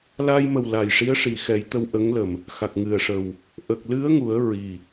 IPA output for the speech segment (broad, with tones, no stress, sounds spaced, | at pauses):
l a˧ j m ə˨˩ w l a˨˩ j ʂ i˧˥ ə̯ ʂ i˨˩ x ɛ˨˩˦ j t̪ ə˧ w ʔ ə˧˥ ŋ l ə˨˩ m | x a˨˩ k̚ ŋ ɨ˨˩ ə̯ ʂ ə˨˩ w | ʔ ə˨˩ k̚ l ɨ˧˥ ə̯ ŋ u˨˩˦ ə̯ ɹ i˨˩